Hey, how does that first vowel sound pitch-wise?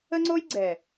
high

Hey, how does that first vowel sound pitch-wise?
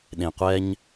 low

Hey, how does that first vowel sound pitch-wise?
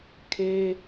high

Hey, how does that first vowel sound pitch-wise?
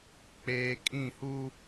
low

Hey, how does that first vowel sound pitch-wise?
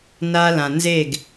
high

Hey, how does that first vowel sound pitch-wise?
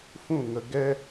falling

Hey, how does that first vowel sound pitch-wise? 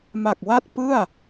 low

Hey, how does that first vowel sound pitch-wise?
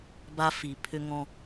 high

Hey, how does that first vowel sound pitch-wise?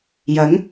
rising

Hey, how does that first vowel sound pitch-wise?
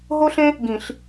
high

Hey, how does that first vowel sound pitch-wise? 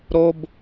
high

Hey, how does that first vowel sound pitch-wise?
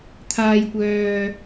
low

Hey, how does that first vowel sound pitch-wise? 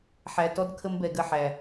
low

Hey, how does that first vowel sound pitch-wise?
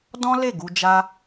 high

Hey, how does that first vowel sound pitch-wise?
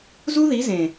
high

